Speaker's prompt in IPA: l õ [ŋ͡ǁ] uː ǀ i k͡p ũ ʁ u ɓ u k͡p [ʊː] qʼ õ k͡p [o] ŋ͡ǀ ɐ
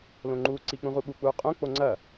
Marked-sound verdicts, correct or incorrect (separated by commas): incorrect, incorrect, correct